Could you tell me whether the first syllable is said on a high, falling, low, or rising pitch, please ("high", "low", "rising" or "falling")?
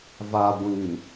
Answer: low